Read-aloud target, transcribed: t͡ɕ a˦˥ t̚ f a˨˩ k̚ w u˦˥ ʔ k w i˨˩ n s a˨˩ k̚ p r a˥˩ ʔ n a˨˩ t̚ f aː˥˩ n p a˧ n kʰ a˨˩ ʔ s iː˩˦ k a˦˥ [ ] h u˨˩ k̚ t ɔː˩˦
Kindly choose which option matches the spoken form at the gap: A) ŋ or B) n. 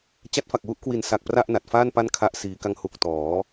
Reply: A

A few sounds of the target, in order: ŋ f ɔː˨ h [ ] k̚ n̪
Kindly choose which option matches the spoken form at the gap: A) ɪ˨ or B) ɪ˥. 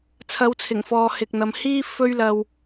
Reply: A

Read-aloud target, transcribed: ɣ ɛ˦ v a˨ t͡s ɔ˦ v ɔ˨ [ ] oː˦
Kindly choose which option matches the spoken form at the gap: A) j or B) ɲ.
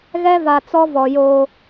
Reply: A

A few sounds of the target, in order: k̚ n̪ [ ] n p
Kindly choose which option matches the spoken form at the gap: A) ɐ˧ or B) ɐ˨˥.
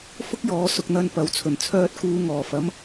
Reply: A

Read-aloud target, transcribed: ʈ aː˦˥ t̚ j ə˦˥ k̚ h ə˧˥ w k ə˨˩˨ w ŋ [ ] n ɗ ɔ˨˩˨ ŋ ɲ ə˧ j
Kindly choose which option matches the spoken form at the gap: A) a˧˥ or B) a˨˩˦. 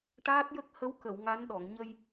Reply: A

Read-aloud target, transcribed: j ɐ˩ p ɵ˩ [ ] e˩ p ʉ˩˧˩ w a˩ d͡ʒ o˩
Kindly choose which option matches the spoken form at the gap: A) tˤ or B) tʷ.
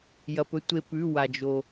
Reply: B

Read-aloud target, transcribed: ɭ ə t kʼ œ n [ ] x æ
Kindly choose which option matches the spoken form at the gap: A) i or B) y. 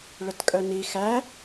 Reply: A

